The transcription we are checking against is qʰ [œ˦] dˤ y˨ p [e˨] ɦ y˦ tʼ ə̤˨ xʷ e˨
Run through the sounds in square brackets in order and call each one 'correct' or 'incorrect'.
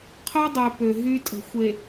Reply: correct, incorrect: ø˨

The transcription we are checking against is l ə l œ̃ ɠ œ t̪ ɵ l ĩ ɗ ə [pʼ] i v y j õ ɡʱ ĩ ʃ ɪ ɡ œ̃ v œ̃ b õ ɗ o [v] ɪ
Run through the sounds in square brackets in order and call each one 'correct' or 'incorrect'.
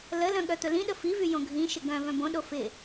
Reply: incorrect: f, incorrect: f

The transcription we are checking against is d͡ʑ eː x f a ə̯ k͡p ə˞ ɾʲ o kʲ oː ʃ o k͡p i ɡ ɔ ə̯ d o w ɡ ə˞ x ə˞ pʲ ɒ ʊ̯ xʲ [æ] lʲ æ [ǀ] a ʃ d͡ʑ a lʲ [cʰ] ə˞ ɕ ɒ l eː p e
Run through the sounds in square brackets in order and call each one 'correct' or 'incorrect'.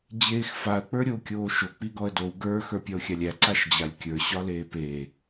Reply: incorrect: a, correct, incorrect: kʲ

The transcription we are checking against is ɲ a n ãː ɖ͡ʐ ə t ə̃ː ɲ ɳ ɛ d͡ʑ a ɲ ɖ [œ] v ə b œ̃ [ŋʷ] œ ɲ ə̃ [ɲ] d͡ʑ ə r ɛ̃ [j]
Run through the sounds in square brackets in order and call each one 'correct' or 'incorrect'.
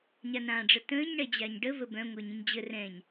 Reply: incorrect: ə, correct, correct, incorrect: ɲ

